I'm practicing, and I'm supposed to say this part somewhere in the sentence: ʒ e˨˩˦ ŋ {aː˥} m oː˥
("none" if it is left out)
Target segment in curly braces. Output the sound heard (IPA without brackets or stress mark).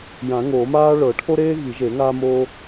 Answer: aː˥